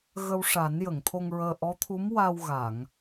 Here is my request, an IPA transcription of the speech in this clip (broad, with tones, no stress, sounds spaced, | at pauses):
ɣ ə˧ w ʂ a˨˩˦ n j ə˨˩˨ ŋ t̪ʰ o˧ ŋ ɹ əː˧ ʔ ɔ˧˥ t̪ʰ u˧˥ m w a˧ w ɣ a˨˩˨ ŋ